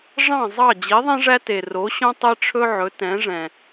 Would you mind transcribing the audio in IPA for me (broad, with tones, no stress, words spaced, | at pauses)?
ʐɑ̃˥˩zˤɑ˥˩ d͡ʑi˩˥ðˤɛ̃˥ʐæ˥ te˩ro˩˥ɕõ˥ tˤe˥ʈ͡ʂʰɵ˥ʕɵ˩˥ tɛ̃˩˥ʐɛ̃˩